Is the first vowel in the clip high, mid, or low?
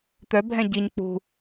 mid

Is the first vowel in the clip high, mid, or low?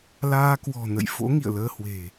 low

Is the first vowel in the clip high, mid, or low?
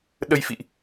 mid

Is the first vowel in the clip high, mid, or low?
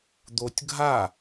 mid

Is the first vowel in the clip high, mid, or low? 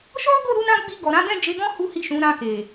mid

